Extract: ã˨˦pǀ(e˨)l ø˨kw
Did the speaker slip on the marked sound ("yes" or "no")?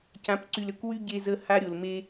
yes